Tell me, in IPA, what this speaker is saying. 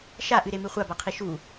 ʃ a ʔ ɨ ɾ e m ɨ χʷ a b a qʰ i ʃ u

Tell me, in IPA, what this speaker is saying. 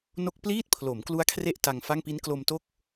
n o˦˥ k̚ p l iː˥˩ t̚ pʰ l o˩˦ m k l u˦˥ a̯ kʰ r e˦˥ ʔ t a˧ ŋ f a˥˩ ŋ p i˦˥ n k l o˧ m t o˥˩ k̚

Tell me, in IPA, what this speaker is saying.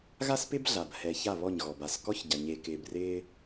ɣ a˦ s p ɪ˦ b ɮ a˨ b h ɛ˨ ç a˦˨ β ɔ˦˨ ɲ ɣ ɔ˨ b a˨ s k ɔ˦ ç ɟ a˨ ɲ e˨ k ɪː˨ b r ɪː˦

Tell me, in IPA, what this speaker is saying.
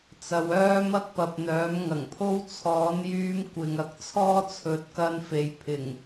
t͡s ɐ˨˧ w œː˥ m ɐ˥ k̚ p ɐ˨ p̚ n̪ œː˨˥ m ŋ ɐ˨˩ ŋ pʰ o˥ w t͡sʰ ɔː˨˥ n j yː˧ m kʷ ɪ˨ ŋ ɐ˨˥ k̚ t͡sʰ ɔː˥ t͡sʰ ɵ˨˥ t̚ k ɐ˧ n f e˨˧ j pʰ ɪ˨˩ ŋ

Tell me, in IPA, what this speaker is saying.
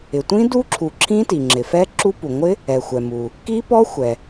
ɪ˩ tʷ ĩ˦˥ d u˦˥ ǁʰ u˩ ǁʰ ĩ˦˥ t i˩ ŋ͡ǁ ɪ˩ f ɛ˦˥ ǁ u˦˥ p u˩ ŋʷ ɪ˦˥ | ɛ˩ xʷ ɛ˩ m u˩ | k i˦˥ p ɔ˦˥ xʷ ɛ˩

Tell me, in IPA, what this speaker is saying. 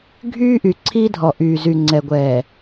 ɡʱ yː˦ ʔ y˨ ǀʰ i˦ dʱ ɔ˨ ʔ yː˨ z y˨ ŋ͡ǀ ɛ˨ ɡʷ ɛː˨

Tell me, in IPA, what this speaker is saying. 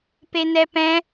p e n ɛ p ɛ̃

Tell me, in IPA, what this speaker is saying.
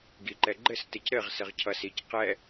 ɡ i ǃ ɛ ɡ͡ǃ ɘ s t ɘ c ɾ ɘ ʁ s ɘ ʁ cʰ ʌ s i c q ɛ

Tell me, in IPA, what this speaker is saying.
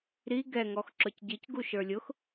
ɾ i ɡ ɛ ŋ ɔ x ǁ ʊ c ɟ i c ɡ u ʃ ə˞ lʲ ʊ x

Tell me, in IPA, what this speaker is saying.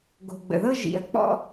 ɡ o̤˨ ɡ͡b ə̰˨ ð ɤ˦ ʒ ḭ˨ ɐ̯ k͡p ɔ̰˦

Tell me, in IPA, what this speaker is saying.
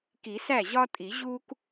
k i˨˩˦ s æ˥˩ ʑ ɒ˥ tʼ i˨˩˦ ʑ u˥ k

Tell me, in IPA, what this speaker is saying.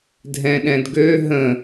dʱ ɛ̃ ɗ ɛ̃ d ɡ ø ɦ ə̃

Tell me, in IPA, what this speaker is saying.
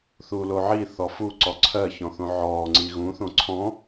θ uː l o ʕ i θ ɔ f u ǀ ɔ ǀʰ ɜ ç ɔ̃ θ õ ʕ ɔː ŋ͡ǀ i ɣ ũ θ õ ǀʰ ɔ̃

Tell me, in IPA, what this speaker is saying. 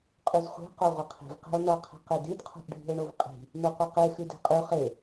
qʼ ʉ z χʷ e̤ q o ʁʷ ʌ qʰ i̤ v q e̤ o̯ n ʌ qʰ e̤ q e d i d qʰ o̤ ʔ ɖʱ i̤ o̯ ɳ o v qʼ i̤ | n o qʷ ʌ q e x ʉ d e̤ qʼ ʉ χ e

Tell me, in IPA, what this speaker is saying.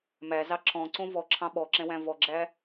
m æ z ɑ ǁ ɔ̃ ǀ õ v ɔ ǁʰ ɑ̃ ɓ ɔ ǁ ɛ̃ w æ̃ v ɔ ɡ͡ǁ æ

